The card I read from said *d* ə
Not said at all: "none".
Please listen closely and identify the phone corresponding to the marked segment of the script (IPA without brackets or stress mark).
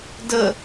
d